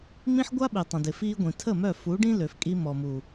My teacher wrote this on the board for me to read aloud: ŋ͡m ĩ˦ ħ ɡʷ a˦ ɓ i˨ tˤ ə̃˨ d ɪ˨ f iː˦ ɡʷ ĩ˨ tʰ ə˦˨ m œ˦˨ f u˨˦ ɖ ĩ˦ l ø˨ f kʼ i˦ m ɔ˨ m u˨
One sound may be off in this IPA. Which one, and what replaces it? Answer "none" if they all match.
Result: none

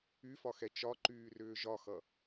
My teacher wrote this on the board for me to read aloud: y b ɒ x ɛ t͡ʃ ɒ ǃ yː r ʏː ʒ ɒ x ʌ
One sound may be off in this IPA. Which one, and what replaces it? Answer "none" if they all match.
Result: b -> f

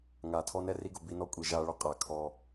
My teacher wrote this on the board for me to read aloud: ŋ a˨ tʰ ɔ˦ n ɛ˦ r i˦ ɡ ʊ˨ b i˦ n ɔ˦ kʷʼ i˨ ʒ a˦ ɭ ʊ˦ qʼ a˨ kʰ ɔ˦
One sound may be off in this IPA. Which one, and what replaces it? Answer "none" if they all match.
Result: none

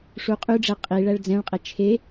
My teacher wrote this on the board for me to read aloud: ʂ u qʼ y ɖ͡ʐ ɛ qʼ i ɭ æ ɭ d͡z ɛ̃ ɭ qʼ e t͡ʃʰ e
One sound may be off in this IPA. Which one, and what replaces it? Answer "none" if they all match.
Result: none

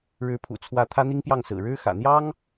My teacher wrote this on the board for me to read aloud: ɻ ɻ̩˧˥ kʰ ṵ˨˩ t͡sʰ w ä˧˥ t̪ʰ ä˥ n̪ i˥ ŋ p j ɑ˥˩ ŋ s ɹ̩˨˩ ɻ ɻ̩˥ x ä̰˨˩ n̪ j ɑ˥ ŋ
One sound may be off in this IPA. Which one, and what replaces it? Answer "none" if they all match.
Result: kʰ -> pʰ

